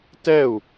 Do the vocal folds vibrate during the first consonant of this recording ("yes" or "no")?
no